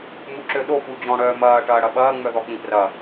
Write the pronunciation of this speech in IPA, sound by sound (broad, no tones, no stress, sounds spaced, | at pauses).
m u ǁ ø ɗ o p u d͡ʑ ɔ̃ ɽ œː m ɐː ʈ ɐː ɽ ɐ ɓ ɐː ŋ͡m œ ð ɔ k͡p ĩ p r ɐ